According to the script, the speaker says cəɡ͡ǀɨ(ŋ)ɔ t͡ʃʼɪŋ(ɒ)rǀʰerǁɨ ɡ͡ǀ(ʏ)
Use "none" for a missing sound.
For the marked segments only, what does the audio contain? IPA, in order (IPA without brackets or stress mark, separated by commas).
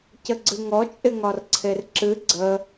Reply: ŋ, ɒ, ə